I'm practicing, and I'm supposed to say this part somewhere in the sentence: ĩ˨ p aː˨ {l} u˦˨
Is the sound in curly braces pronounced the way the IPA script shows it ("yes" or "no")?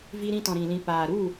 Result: no